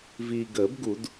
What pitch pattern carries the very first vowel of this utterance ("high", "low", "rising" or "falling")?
low